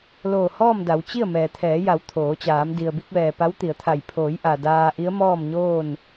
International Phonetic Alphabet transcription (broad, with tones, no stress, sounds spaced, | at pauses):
l oː˧˩ h ɔː˥˨ m d a˩˧ w t͡ɕ i˥˨ ə̯ m ɛː˩ t̪ʰ ɛː˩˧ j a˩˧ w t̪ʰ oː˩˧ t͡ɕ aː˩˧ m d i˩ ə̯ b i˧ k̚ ʋ ɛː˩ p a˧˥ w t̪ i˩˧ ə̯ t̪ʰ a˧˩ j pʰ oː˩˧ j ʔ a˩ d aː˧ ʔ i˧˥ ə̯ m ɔː˥˨ m ɲ oː˥˨ n